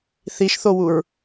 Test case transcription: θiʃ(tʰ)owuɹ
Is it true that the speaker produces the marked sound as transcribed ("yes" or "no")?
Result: no